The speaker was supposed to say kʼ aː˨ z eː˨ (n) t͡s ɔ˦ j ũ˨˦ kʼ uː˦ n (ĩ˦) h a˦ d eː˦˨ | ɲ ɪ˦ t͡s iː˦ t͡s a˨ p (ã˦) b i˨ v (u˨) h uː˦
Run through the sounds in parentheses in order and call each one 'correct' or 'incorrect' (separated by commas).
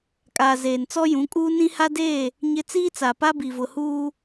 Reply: correct, correct, incorrect, incorrect